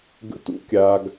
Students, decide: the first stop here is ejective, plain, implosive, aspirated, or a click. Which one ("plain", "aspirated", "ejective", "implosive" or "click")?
plain